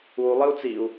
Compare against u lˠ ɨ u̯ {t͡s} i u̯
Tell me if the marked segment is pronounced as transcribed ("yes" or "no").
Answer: yes